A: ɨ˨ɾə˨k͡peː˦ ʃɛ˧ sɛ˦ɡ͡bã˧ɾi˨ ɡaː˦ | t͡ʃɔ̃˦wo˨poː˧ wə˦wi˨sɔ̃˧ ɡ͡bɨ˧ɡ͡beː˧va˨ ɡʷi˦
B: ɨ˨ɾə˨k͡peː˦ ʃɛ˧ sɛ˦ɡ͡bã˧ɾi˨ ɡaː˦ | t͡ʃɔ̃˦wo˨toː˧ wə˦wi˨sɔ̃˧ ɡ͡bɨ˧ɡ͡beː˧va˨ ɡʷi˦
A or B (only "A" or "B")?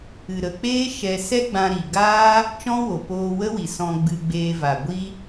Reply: A